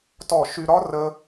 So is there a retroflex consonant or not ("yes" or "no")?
no